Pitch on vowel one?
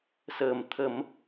low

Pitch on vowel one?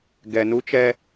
low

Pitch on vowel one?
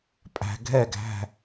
low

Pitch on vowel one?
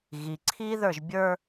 low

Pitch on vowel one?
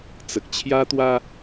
low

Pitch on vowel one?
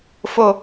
low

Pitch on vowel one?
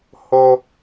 high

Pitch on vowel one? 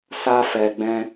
high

